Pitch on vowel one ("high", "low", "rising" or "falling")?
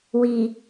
low